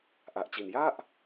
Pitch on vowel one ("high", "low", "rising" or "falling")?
low